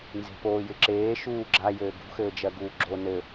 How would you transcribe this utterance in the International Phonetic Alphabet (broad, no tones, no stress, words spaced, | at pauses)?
nze̤poːjɪǁeː ʃuːɡ͡ǁajɘː ɡṳxɘːd͡ʒɜ ɡuːɡ͡ǁo nɘ